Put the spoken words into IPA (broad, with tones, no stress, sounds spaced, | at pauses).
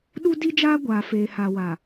ɗ u˦ d i˦ d͡ʒ aː˦ ɡʷ aː˨ f eː˨ h a˨ w a˨